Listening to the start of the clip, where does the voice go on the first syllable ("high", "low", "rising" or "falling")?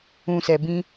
low